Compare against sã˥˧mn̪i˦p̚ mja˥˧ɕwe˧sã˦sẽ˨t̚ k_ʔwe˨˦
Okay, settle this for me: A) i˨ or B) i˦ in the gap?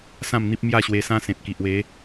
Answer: A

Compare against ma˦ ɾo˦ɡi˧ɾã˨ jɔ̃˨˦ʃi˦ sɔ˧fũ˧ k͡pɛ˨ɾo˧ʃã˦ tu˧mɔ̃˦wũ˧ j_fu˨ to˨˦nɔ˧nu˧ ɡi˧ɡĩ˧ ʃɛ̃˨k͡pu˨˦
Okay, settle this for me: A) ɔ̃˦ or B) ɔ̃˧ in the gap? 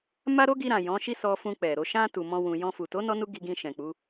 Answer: B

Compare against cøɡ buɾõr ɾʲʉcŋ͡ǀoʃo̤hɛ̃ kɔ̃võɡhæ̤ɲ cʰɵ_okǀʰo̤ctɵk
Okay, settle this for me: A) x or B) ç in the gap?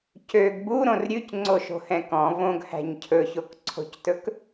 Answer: B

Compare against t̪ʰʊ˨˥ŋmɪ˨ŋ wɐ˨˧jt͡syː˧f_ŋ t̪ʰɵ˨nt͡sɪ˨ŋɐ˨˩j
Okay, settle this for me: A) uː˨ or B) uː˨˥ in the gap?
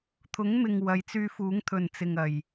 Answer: B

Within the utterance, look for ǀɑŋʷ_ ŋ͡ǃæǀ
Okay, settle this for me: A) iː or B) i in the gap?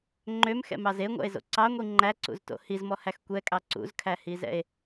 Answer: B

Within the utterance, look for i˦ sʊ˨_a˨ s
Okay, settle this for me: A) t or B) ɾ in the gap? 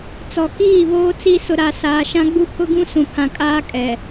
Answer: B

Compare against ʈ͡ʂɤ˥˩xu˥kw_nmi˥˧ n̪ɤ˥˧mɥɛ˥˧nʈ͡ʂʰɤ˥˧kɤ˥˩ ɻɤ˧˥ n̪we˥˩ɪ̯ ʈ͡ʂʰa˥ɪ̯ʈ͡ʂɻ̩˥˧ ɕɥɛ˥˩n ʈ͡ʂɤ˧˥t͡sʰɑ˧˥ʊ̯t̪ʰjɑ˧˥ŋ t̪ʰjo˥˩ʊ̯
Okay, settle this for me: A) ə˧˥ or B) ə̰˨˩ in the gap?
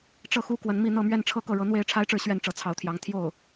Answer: A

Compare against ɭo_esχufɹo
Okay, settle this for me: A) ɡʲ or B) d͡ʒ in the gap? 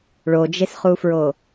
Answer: B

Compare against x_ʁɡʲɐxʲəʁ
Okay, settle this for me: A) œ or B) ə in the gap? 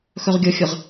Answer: A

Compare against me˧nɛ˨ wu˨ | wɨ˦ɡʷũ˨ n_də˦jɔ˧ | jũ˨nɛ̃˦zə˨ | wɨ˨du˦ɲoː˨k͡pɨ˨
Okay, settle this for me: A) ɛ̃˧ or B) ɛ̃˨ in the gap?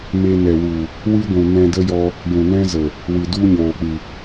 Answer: A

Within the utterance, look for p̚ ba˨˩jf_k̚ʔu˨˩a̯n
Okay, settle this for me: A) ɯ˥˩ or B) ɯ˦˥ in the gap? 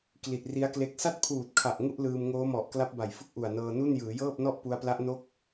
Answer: A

